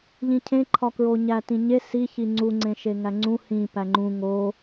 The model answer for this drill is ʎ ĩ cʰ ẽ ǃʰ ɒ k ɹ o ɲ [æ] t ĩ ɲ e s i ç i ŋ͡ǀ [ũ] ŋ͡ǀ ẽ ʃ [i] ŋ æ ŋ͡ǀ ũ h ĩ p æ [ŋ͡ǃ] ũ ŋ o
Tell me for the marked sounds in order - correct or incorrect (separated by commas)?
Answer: correct, incorrect, incorrect, correct